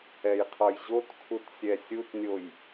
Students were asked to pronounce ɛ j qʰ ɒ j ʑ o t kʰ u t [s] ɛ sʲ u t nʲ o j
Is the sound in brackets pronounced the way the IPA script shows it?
no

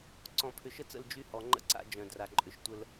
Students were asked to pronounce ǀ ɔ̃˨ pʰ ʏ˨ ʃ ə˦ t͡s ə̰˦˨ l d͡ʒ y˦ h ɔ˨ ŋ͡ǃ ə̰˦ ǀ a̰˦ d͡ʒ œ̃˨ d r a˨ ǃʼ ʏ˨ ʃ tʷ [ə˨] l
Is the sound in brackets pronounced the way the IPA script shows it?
no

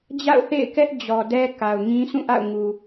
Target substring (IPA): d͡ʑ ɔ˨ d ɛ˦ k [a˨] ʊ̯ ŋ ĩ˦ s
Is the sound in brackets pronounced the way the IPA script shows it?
yes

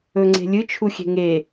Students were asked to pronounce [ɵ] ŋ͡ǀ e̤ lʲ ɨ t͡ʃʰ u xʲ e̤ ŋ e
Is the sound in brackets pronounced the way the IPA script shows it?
yes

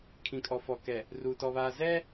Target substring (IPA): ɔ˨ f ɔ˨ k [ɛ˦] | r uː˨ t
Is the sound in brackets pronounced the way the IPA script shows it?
no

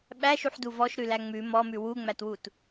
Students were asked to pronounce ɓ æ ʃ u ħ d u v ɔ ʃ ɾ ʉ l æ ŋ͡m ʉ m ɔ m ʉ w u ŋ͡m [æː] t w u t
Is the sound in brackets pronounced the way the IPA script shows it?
no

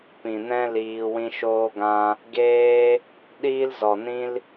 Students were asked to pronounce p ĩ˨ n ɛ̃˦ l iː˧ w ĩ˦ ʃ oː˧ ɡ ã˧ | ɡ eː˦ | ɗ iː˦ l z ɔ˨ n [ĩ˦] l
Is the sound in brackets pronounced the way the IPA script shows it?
yes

